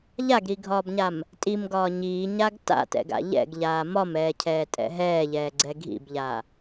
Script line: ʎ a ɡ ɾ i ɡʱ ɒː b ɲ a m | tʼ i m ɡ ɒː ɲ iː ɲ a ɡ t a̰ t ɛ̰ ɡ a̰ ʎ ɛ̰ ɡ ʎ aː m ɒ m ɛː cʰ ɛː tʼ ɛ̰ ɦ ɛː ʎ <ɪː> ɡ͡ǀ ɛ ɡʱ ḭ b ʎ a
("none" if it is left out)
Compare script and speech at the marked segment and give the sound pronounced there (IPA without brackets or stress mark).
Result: ɛː